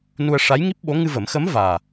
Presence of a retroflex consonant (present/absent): present